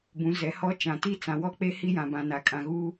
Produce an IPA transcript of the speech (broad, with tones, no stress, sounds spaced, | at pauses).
b ũ˨˦ z ɛ˨˦ h ɔ˦ t͡ʃ ã˨ t i˦ t͡s ã˨ w ɔ˦ k͡p e˦ h i˦ j ã˨ b ã˨ n a˨ kʼ ã˨ ɣ uː˦